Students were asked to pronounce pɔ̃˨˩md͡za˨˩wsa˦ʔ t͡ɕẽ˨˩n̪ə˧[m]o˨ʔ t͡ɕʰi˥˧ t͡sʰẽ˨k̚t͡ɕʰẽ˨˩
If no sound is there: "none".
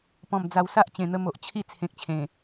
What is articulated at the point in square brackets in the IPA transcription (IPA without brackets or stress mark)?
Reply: m